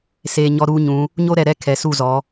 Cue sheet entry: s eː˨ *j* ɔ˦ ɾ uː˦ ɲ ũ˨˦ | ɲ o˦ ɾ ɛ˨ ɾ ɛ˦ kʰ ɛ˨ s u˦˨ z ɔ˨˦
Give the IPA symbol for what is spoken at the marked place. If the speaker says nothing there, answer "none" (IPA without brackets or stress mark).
ɲ